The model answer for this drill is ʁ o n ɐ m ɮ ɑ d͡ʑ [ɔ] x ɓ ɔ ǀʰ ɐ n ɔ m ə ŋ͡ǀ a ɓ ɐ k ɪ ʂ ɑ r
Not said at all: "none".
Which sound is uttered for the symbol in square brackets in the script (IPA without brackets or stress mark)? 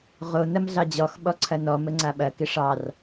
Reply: ɔ